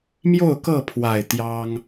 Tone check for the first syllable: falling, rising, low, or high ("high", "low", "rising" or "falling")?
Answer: falling